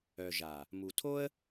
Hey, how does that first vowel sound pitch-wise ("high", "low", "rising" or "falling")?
low